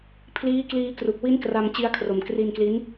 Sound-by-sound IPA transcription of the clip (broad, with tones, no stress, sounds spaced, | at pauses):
pʰ l iː˦˥ k l iː˧ k r u˨˩ k̚ w i˦˥ n k r a˧ m t͡ɕ i˧ a̯ kʰ r o˨˩ m k r i˧ n k l i˦˥ n